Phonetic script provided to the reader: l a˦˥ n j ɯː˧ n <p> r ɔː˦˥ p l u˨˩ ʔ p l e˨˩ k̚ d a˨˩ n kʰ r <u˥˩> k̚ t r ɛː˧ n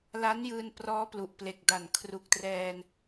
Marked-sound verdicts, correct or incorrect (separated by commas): correct, incorrect